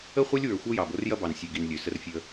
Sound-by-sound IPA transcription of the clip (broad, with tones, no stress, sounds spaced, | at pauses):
ə˦ χʷ ɐ˦ lʲ w ə˞˨ xʷ ɐ˦ j ɑ˨ b o˦ r j ɐ˦ b ɑ˨ n sʲ ø˨ ɡ i˨ n lʲ ø˨ s ə˦ r fʲ ə˦